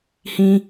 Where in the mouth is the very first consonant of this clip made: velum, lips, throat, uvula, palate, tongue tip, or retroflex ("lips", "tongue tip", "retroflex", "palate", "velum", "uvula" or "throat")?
throat